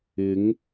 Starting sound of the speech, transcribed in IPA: ɪ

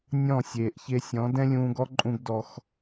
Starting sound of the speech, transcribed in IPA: nʲ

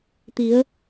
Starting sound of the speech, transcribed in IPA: t̪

